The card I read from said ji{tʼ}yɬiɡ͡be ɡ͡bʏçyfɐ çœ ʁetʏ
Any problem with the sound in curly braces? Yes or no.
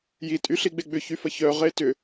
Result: no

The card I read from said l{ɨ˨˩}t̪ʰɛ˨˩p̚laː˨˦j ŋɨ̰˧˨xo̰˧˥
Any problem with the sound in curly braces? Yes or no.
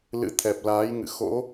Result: yes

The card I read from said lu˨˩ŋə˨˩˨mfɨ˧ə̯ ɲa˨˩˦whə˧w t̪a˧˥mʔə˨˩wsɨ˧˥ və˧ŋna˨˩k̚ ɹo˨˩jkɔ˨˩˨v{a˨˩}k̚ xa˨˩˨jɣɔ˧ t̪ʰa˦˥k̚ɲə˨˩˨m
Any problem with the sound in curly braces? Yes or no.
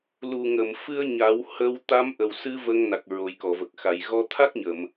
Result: yes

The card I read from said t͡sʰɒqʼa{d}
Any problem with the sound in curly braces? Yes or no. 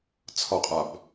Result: yes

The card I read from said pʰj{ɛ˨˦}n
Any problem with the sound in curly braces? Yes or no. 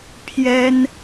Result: yes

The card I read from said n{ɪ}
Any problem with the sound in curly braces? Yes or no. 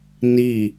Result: yes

